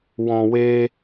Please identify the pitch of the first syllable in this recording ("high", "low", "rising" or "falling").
low